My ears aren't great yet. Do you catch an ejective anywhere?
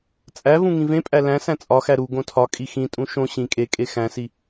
yes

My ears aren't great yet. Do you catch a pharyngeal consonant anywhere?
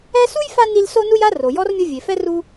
no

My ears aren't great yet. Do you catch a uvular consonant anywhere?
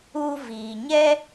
no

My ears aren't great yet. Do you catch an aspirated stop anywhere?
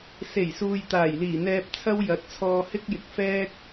yes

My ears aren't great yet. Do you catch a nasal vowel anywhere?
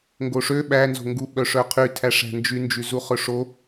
no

